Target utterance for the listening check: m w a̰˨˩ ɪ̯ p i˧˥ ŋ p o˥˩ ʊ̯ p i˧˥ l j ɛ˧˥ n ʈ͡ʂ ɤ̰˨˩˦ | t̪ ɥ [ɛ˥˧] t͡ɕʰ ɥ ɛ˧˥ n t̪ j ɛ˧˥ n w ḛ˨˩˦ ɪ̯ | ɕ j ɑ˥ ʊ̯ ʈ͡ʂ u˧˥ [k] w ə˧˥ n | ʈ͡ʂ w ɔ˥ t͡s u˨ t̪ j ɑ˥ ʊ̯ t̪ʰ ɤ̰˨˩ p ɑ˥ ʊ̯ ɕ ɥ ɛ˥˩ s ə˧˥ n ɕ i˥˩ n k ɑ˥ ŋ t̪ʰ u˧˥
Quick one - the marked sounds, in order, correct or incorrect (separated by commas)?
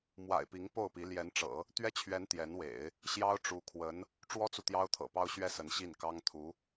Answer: incorrect, incorrect